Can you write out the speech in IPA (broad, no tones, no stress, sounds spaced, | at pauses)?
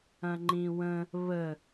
ɐ̃ ŋ͡ǃ ĩ w ə̃ | β ə